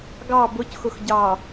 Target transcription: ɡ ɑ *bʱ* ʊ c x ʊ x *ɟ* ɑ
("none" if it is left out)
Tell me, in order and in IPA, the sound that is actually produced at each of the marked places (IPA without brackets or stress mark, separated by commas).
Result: b, ɟ